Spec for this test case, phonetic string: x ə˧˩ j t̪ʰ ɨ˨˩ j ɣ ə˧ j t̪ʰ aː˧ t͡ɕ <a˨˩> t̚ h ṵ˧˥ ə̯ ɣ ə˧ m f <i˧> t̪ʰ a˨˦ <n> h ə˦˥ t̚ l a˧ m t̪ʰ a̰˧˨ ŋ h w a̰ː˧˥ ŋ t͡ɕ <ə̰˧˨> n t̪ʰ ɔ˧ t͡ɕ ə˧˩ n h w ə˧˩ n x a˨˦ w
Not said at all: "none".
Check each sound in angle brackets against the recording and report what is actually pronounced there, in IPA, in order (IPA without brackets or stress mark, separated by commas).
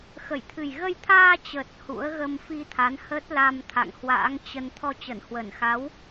ə˨˩, i˧, n, ə˧